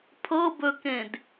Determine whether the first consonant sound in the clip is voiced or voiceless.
voiceless